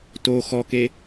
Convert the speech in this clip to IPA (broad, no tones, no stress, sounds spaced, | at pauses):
t o x ɔ k e